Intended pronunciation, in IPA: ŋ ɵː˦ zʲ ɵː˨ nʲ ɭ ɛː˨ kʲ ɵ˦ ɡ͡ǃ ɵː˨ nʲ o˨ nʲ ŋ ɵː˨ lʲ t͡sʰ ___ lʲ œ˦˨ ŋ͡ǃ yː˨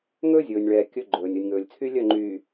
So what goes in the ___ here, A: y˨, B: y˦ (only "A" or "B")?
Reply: B